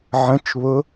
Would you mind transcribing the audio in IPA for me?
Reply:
ʕ ə̃ t͡ʃ β ʊ

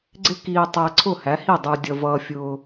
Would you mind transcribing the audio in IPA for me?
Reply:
ɡ͡ǀ ɪ˥ k iː˧ tˤ æ˧ ǀʰ ʊ˥˩ h æ˩˥ h i˥˩ dˤ ə˞˧ dʲ ʌ˧ v ʌː˧ fʲ ʊː˧

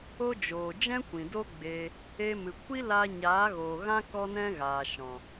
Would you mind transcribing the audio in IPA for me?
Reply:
o˦ d͡ʒ oː˨ d͡ʒ ɛ̃˦ kʷ ĩ˨ d o˦ ɡ͡b e˧ | e˧ m ɨ˨ kʷ i˦ l a˦ ɲ aː˨˦ ɣ oː˨ ɣ ã˦ k ɔ˦ n ɛ̃˦ ɣ aː˨ ʃ ɔ̃˨

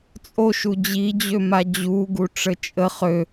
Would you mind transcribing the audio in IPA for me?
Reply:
t͡sʼ o ʃ u d͡ʑ i d͡ʑ ø m a d͡ʑ u ɡ u ʈ͡ʂ ə t͡ʃʼ ə χ ø

